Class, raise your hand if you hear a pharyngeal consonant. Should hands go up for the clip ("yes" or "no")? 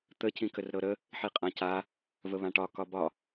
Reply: yes